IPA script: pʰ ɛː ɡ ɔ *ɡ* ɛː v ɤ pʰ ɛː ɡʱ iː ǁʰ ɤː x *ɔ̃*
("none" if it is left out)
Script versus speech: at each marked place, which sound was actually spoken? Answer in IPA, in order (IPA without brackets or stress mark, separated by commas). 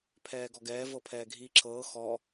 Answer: ɡ, ɔ